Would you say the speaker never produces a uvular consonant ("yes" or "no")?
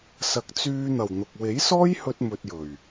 yes